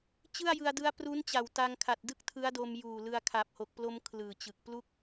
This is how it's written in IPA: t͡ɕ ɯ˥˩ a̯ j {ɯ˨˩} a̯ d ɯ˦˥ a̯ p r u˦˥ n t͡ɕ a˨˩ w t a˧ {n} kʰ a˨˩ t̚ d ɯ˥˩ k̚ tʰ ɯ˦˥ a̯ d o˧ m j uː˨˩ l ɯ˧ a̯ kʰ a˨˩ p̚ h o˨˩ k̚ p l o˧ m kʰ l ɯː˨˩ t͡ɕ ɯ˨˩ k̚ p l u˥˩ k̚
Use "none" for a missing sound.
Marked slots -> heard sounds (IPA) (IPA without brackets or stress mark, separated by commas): ɯ˧, ŋ